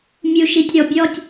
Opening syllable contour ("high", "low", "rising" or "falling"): low